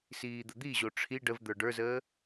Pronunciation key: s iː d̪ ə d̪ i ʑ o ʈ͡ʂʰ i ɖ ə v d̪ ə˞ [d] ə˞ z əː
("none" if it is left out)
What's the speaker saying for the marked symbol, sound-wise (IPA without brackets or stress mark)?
ɖ